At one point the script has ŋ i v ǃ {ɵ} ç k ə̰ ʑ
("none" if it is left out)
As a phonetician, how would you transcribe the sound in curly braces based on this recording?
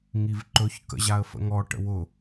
ɵ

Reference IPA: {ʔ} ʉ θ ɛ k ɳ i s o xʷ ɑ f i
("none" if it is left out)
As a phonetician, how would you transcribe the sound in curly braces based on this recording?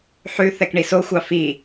ħ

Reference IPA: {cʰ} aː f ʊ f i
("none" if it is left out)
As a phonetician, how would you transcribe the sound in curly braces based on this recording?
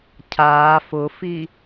cʰ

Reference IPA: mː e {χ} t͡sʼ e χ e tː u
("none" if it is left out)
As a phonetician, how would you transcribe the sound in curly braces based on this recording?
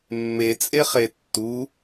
none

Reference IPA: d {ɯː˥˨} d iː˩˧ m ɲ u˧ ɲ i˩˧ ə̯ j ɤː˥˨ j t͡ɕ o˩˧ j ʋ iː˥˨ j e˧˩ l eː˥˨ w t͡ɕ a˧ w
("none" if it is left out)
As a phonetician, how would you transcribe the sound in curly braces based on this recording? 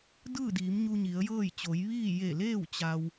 ɯː˥˨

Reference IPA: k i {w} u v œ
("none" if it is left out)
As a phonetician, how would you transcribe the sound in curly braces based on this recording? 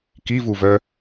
v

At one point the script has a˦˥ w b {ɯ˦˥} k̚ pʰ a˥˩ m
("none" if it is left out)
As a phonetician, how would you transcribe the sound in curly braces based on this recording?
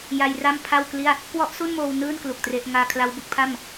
u˦˥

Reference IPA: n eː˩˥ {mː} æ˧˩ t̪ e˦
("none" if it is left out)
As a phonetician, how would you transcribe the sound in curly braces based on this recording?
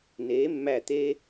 mː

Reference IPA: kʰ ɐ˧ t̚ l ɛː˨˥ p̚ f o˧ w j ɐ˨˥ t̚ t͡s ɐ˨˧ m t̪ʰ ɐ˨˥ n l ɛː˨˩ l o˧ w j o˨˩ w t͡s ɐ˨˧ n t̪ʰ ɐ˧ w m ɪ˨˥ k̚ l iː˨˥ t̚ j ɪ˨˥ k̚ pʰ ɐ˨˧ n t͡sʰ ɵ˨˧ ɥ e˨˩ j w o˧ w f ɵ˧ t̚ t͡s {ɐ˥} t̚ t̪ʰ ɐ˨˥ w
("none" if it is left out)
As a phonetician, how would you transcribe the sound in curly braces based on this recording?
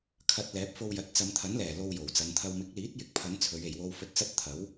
ɐ˥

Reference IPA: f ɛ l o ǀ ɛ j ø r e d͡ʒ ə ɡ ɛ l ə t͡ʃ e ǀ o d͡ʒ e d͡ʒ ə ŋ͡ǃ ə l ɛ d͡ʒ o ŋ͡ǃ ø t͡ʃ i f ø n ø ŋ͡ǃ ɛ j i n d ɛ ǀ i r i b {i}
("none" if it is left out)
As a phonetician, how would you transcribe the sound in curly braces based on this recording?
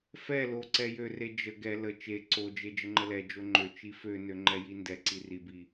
i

